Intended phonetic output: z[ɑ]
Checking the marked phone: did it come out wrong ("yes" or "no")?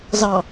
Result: no